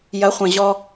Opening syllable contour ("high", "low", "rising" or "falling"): rising